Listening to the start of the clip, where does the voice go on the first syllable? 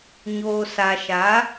low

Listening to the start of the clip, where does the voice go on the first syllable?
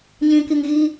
low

